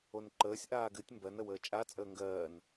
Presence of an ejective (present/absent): present